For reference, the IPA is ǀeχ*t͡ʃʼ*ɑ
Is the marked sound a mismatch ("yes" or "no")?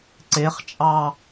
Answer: no